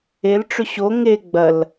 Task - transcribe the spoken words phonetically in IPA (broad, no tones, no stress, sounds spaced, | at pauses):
e l ʈ͡ʂ ʏ ɕ o ŋ e ɡ͡b ɐ l